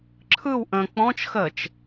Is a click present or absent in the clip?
present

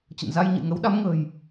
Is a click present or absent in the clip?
absent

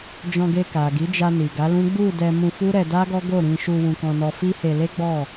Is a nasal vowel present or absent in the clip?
present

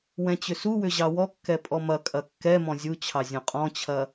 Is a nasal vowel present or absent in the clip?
present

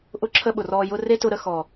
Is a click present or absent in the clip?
present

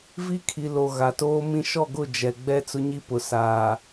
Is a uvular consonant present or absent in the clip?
absent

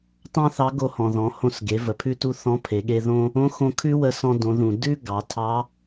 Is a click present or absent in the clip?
absent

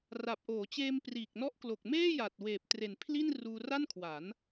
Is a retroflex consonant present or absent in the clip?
absent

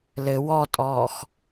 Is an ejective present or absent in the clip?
present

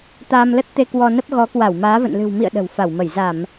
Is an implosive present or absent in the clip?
present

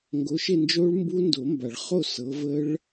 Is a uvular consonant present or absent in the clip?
present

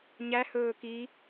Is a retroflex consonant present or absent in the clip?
absent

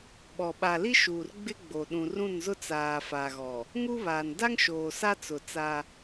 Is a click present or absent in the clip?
absent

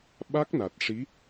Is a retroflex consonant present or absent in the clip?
present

